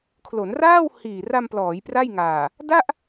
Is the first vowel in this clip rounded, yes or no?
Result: yes